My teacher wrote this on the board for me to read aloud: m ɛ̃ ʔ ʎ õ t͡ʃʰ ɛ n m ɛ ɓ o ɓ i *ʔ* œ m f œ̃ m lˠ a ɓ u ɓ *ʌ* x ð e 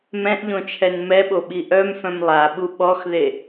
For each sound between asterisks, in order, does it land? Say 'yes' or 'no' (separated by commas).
yes, no